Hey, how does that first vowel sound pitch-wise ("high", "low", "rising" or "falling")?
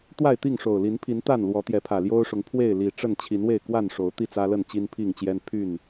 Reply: falling